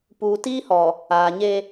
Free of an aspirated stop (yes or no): yes